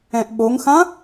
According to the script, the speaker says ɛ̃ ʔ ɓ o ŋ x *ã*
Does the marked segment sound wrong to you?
no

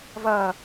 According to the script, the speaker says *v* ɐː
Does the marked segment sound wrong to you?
no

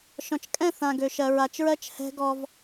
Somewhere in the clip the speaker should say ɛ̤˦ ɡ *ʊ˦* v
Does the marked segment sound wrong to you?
yes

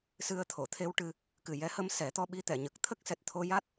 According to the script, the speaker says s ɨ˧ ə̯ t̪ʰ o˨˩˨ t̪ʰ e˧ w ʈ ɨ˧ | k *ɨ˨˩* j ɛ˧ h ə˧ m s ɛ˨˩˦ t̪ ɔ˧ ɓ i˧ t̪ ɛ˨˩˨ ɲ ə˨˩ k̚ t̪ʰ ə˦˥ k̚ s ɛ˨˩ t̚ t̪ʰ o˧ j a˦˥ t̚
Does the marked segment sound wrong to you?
no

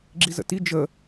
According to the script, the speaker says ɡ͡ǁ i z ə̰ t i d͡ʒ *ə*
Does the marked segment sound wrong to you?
no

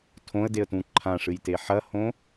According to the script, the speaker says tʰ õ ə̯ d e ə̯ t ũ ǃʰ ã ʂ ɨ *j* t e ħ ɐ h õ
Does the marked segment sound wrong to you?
no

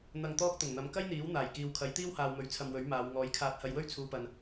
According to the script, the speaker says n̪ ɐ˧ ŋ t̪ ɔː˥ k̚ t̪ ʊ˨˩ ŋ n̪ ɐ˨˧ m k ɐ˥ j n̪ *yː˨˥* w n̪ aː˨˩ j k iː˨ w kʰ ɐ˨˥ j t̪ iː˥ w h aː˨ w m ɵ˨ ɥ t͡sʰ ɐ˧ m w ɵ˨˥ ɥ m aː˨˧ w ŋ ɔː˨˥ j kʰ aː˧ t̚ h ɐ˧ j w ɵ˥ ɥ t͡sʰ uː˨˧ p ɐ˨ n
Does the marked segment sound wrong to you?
yes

